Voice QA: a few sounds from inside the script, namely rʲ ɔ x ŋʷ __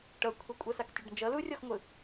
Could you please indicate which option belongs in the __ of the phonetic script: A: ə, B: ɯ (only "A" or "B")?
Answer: B